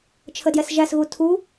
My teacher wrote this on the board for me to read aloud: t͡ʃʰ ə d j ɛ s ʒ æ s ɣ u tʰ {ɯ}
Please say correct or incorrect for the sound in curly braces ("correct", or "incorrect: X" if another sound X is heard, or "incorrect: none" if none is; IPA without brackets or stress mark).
incorrect: u